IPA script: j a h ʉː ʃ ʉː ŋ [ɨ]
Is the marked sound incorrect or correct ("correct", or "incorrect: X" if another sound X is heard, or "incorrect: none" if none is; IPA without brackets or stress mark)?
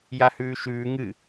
correct